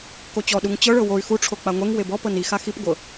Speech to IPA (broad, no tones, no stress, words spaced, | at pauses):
kot͡ɕɔɗuŋ t͡ɕɤɭɤ woy̯ xuʈ͡ʂʰo k͡paŋʷɛŋ webɔ pɤnixa xip ɡʷɤ